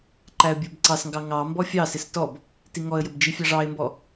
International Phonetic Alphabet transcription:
ǃ æ ə̯ bʲ ə˞ b ǀ ɑ s ŋ ɡ ɑ ŋ ɑ m b ɔ fʲ ɑ s ɪ s t ɔ b | t i ŋ ɔ ə̯ j ə b d͡ʒ i fʲ ɑ ʐ ɑ ɪ̯ m b ɔ

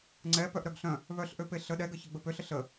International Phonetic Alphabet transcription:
ŋ͡ǀ ɛ p œ ʔ ɾ œ ɡ ɬ œ̃ | β œ ɬ ʔ ø p e ɬ ə ɗ ɛ ɡ ə ç ə ɡ͡b ə p ø ɬ ə ɬ ə

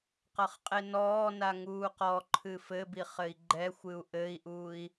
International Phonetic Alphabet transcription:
q ɐ χ qʼ e n ɔː n a ŋ uː q ɔ ǃʰ ɨ f ɘ b i χ ɘ i̯ ɡ͡ǃ ɛ xʷ ɨ u̯ ʔ ɘ i̯ ʔ uː i̯

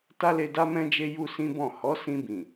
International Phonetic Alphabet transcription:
t a˦ l e˧ d a˦ m ɛ̃˦ d͡ʒ e˦ j u˦ s ĩ˦ b ɔ̃˦˨ h ɔ˨˦ s ĩ˧ b ĩ˨

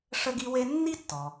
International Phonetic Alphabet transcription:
ʂ ə˥ ɡ i˥ w e˥ nː i˥ tː ɔ˩

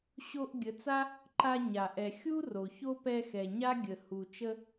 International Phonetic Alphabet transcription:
ɕ o˧ ʔ ɡʲ ə˨˦ t͡s a˦ | ǃ a˧ ɲ a˨ ʔ ɛ˨ xʲ u˦ r o˨ ç o˦ p ɛ˧ x ɛ˨ ɲ a˦ ɡʲ ə˨ h u˨ t͡ʃ ə˧

